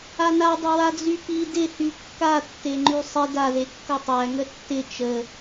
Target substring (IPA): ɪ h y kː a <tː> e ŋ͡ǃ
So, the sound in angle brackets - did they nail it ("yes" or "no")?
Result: yes